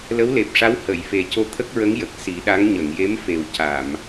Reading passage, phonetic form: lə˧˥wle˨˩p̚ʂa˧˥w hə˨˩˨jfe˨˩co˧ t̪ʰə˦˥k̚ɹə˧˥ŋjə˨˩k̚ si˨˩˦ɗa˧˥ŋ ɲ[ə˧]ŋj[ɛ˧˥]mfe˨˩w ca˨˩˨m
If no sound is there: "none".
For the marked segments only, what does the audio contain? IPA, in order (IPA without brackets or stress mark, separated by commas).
ə˨˩˨, e˧˥